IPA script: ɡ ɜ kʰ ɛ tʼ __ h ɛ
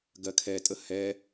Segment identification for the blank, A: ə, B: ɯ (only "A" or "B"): A